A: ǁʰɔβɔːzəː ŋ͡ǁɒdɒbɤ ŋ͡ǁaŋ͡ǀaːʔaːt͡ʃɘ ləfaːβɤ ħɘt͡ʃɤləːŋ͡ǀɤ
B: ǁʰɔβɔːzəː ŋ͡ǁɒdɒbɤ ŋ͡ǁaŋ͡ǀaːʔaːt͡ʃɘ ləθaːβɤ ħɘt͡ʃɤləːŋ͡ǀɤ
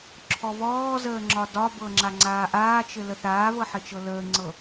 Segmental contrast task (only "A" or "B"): B